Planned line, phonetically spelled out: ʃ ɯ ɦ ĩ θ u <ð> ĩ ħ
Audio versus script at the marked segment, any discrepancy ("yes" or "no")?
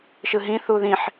no